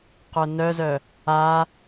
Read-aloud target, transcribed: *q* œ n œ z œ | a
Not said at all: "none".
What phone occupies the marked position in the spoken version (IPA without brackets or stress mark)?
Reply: q